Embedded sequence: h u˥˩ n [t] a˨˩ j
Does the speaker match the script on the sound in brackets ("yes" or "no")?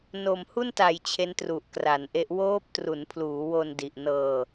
yes